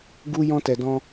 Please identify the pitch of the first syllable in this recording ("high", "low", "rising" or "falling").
high